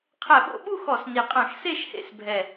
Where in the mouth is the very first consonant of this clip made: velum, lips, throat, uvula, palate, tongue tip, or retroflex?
uvula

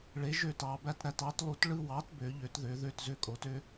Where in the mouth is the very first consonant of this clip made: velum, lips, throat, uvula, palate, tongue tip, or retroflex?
retroflex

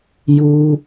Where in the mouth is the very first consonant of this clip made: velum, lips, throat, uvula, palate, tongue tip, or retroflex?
palate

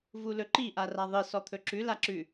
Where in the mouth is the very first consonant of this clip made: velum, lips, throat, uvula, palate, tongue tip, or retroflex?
lips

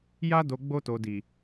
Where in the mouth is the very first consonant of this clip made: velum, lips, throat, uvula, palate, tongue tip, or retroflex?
palate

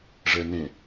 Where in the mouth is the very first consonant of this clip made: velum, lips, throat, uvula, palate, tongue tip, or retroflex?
retroflex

